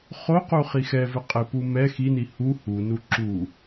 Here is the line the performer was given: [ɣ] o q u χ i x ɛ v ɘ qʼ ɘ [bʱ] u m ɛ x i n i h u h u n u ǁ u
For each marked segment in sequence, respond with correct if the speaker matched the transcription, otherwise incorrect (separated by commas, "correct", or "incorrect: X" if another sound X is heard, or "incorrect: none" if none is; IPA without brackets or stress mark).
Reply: incorrect: χ, incorrect: p